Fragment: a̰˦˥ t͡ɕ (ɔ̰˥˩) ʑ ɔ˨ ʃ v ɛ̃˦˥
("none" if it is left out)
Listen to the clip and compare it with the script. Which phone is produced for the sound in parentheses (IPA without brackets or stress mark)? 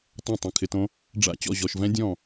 ɔ̰˥˩